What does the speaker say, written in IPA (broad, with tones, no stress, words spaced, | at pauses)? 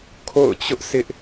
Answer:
kʰo̰˦˨ʊ̯t͡ɕʊ˦ʔsɪ˦ʔ